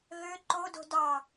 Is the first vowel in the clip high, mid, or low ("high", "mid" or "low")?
mid